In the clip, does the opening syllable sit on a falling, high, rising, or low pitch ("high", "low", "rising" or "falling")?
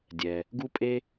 low